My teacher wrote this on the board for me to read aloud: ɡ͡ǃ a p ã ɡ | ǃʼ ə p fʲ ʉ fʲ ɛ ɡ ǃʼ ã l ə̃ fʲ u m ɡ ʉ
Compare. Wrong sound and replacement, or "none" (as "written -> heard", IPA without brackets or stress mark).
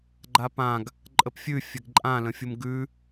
none